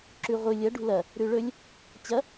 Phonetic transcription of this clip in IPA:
ǁʉʁʷɨ lʲɐɖṳ lɐ | ɾʉɭɵlʲ | t͡ɕɐ

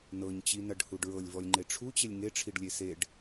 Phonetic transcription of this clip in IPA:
nɤɲt͡ɕinɐɖhuɖ ɹɤlʲvɔlʲŋ͡ǃe ʈ͡ʂʰut͡ɕelʲ ŋeʈ͡ʂʰiɖlʲe seɖ

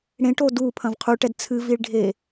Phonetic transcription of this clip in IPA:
ɽẽʈo dupʰɐ̃v qʰuʈɛd t͡sʰɨviɭɖʱe

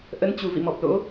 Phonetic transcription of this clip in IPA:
ʔə˨˦nt͡ɕu˨˩ vḭ˧˨mɔ˨˩p̚lo̰˧˥

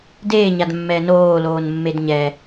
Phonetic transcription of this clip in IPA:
deːɲadmːɛː noːloːnmːed ɲɛ

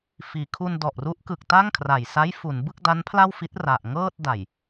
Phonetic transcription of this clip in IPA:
fiː˩˦kʰu˧n dɔ˨˩ʔru˦˥ʔkɯ˨˩k̚ ta˥˩ŋkʰra˨˩j sa˦˥jfu˩˦n bɯ˥˩k̚da˦˥npʰla˥˩wfi˦˥t̚ ra˨˩ʔ ŋɤː˥˩t̚ da˨˩j

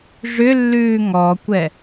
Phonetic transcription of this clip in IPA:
ʐʏlːʉː ŋɔkʷɛ

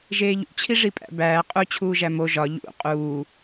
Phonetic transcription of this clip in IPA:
ʒeːʎṵt͡ɕʰi ʐipʼæ̰bæː qʼut͡ɕʰuː ʒæmo ʒɒ ʎṵ qʼuː

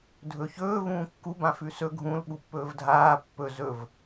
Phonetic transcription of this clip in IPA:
dʱɵçɵː vũːkːu bãfʉsɵ ɡʱũl ɓupːɵːvdʱaː pːɵ zɵv

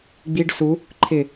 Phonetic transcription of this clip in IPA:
ɡ͡biɖ su | ǃʰɪ

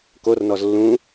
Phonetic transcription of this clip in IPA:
kornɔz lːũ

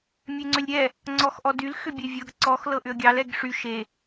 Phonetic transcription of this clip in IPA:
mʲeŋ͡ǀʏlʲɾʲɛ | ŋ͡ǀɔxʔɔdyl xʏbʲevʲɤɡ ǀɔx lɤʔʏə̯ɡʲɑl ɛɡʂy ʃe

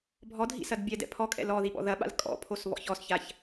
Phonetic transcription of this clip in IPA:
bʱɔdʱḭsɐd bʲɛdɛ̰ pʰɔkʼɛ̰l ɔðiɓɔ̰ ðɐɓa̰l kʼɔ̰pʰosβɔ̰ç ɔsçaç

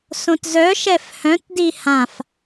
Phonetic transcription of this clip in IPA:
sõtzœ ʃɛfhœ̃t dihãf

